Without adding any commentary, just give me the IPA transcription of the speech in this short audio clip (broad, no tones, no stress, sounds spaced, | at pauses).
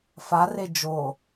f a r e d͡ʒ o